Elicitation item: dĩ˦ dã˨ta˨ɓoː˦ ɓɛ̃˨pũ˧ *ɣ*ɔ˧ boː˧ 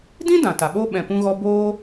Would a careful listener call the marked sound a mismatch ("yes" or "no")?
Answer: no